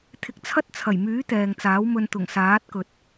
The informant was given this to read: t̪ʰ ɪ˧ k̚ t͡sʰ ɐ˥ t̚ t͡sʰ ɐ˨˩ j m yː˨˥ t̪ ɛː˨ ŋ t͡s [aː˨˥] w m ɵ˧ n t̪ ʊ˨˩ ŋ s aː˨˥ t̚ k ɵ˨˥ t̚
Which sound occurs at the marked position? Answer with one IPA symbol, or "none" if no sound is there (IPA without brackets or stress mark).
aː˨˥